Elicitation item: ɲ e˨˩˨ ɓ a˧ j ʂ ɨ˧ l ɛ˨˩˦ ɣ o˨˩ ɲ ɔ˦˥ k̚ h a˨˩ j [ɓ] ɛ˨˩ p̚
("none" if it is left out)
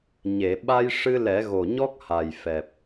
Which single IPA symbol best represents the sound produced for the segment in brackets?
f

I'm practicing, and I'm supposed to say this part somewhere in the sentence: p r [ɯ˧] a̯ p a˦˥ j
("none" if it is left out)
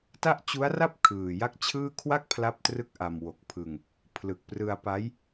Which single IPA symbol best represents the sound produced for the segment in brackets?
ɯ˧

